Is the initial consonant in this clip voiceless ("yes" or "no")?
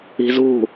no